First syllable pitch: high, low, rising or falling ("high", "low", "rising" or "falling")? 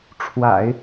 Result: low